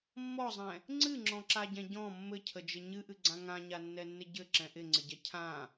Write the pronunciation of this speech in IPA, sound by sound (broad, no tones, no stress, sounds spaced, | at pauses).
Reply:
mː ɔ zˤ ɛ̃ | ŋ͡ǀ ɨ ŋ͡ǁ ɔ̃ ǁ a ɟ ɛ̃ ɟ ɔ̃ mː ɘ cʰ ə d͡ʒ ɘ ɲ ɨ ʔ ɨ ɡ͡ǀ ã ŋ ã ɲ a nː ɛ nː ɪ ɟ ɘ ǁ ɛ̃ ʔ ɪ ŋ͡ǀ ɪ ɟ ɛ cʰ ã